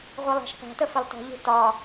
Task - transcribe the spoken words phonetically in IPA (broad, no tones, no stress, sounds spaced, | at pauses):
ʁʷ i lˠ æ̤ ʃ p æ̤ t ə f ə lˠ t ɔ̤ ʎ ṳ t ɒ